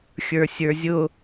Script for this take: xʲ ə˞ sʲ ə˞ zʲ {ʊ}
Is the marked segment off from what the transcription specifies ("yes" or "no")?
no